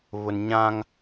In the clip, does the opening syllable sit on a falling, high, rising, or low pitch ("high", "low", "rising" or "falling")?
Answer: low